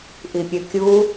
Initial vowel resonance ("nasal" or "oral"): oral